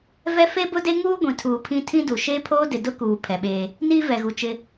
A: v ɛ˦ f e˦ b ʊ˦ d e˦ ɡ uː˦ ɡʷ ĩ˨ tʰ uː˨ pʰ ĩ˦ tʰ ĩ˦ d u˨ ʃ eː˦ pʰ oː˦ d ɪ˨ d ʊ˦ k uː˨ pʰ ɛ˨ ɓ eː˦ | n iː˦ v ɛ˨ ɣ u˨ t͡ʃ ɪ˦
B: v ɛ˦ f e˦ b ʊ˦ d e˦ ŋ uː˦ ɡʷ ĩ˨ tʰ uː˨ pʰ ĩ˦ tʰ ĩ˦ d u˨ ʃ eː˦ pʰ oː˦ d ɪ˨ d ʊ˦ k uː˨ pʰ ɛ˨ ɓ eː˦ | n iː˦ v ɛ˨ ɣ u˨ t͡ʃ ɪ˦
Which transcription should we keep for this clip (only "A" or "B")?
B